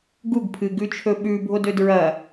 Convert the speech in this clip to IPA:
ɡ u ɡ pʰ ɨ ɡ ʉ t͡ʃʰ ɵ ɓ ʉ bʱ o d ɵ d ɹ ɐ

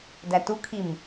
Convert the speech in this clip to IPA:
d æ t u kʰ i m

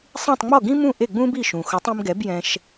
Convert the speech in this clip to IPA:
sˤ ĩ˥˩ tˤ ŋ͡m ɔ˥˩ ɡ ĩ˥ m ũ˥˩ ʔ e˥˩ ɡ͡b ũ˥ b i˥˩ ʃ ũ˩ x ʊ˩˥ tˤ ĩ˧ m ɡ ɛ˩˥ b j ɛ̃˧ ʃ

